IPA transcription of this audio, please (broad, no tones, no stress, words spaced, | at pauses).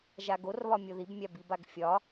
ʒaɡorβɒ mʲoðibmʲa bibaɡfʲɒ